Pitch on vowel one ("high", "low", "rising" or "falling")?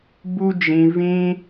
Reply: high